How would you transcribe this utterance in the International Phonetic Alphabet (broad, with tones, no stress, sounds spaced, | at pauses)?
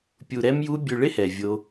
pʲ u˧ ɾ ɛ˦ m j u˦ bʲ ø˧ ɭ ɪ˦ h ɛ˨ vʲ o˦